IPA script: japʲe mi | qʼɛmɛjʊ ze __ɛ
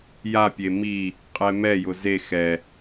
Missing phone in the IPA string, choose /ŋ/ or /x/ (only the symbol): x